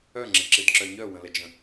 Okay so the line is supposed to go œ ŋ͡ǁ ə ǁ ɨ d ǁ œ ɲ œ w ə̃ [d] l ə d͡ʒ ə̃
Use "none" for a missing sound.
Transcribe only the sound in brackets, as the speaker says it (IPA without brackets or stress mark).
none